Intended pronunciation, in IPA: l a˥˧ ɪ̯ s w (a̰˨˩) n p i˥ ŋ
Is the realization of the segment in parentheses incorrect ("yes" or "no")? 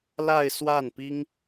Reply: yes